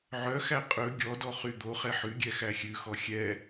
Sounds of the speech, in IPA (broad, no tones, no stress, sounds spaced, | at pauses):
ʕ œ x æ qʼ ɵ ɡʲ ɔ d ɔ χ y d̪ o χ ɛ ħ ʉ ɡʲ ɛ x æ xʲ ʉ x ɔ xʲ ɛ